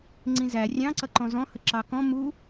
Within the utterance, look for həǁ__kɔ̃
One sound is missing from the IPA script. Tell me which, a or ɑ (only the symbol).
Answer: ɑ